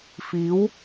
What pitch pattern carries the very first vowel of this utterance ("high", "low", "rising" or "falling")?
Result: rising